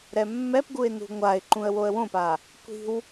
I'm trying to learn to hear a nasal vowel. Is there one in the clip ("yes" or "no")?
yes